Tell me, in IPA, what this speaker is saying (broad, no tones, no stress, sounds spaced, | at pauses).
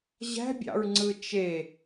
ʑ æ̤ bʲ ɑ̰ ɹ ŋ͡ǀ ɯ t͡ʃ e